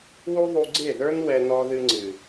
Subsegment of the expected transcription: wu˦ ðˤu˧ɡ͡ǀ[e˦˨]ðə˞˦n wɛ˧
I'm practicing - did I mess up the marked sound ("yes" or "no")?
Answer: no